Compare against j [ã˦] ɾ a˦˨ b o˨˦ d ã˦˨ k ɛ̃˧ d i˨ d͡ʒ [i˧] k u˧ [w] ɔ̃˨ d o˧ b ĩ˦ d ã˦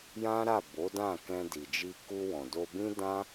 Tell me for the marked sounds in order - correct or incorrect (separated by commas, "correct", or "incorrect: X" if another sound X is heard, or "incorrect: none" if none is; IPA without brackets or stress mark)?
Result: correct, correct, correct